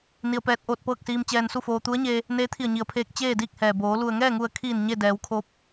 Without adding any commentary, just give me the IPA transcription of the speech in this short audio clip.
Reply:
ni˧ə̯pɛː˧˥t̚ ʔoː˧t̚pɤː˥˨k̚siː˧m t͡ɕɛː˧nsu˥˨foː˧ t̪u˧˥ə̯ɲeː˧ | neː˧˥t̪ʰi˧˩ə̯ɲi˩ə̯pʰeː˧k̚ t͡ɕeː˥˨diː˥˨k̚hɛː˩boː˩˧ lu˩ə̯ŋɛː˥˨ŋu˧˩ə̯kʰiː˧˩n ɲe˥˨ dɛː˩˧wkʰoː˧˥p̚

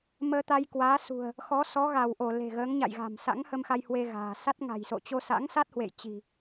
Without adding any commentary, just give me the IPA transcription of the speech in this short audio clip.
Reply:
məː˧t̪a˧jkwaː˨˦sṳ˨˩ə̯ | xɔ˨˦sɔ˨˦ɣa˧˩w ʔo˧˩ le̤˨˩ɣəː˨˦ŋ ɲa̰˧˨jɣa̤˨˩m sa̰˧˥ŋhə˧m xa˧jhwe˧ ɣa̤ː˨˩ sa˦˥t̚ŋa̤˨˩jso̰˧˨ t͡ɕo˧sa̰ː˧˥ŋsa˦˥t̚ hwḛ˧˨jt͡ɕi̤˨˩

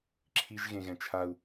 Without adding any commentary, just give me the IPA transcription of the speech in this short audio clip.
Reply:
ǁʰiʒɣẽɣɛ̃ t͡ʃʰau̯

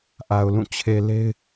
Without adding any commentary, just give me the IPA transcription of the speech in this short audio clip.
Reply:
ʔa˨ʊ̯lũ˦˨ t͡ɕʰe˨ le˦ɪ̯

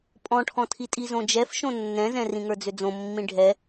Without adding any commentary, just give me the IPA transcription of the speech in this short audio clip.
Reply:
pʼɔ̃ʈʰɔ̃tʰi tʼizõd͡ʒɛf ʃõnːɛ̃zɛ̃ rĩŋə˞d͡zʏd͡zõ mːĩɖʱɛ

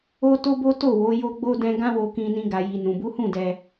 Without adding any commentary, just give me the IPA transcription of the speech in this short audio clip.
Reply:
o˦to˦bo˦ to˦˨wo˨˦ jo˦ɡ͡bo˦dɛ̃˦ ɡã˦wo˧kĩ˧nĩ˧ ɡa˨ji˨nũ˨bu˨˦ hũ˦˨dɛ˧

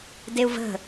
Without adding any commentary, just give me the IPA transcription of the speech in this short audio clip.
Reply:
deu̯və̤

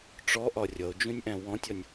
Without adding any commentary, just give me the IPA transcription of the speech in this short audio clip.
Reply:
ʈ͡ʂɔʔɒ rʲʌo̯d͡ʒũnʲʔæ̃ wɔ̃tʲɒnʲ

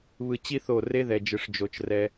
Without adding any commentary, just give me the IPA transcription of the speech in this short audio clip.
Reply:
βɯ˨t͡ɕi˦ θo˦˨ re˦ðɛ˨d͡ʒɯ˨ʂ d͡ʒo˨t͡ʃrɛ˦

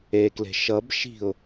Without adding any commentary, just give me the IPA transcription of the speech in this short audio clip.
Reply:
ekle̤ ʃʌb ʃi̤ʊ̯

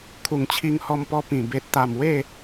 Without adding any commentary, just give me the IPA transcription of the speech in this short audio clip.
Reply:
kʰu˨˩ŋt͡ɕʰi˧ŋhɔ˧mpɔ˧ pĩ˨˩ be˨t̚t̪a˨˩m we˥˧

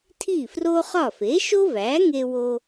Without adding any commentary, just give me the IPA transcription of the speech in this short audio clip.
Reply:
tʰi˥˩fro˥χɒ˥˩ fe˩˥ʃo˥ væ˩˥ŋe˧wo˧

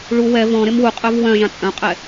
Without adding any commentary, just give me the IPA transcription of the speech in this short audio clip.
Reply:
ɭu wɛ vɔ̃ ɾemwuqʼœv wœ̃ʒã t͡sʼœ̃qʼɛ

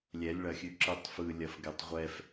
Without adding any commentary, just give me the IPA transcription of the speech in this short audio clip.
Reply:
lʲɛlʲɭɐxʲʉǁɯtˤ fɯlʲɐfɡɛtˤ ʁʷɛf

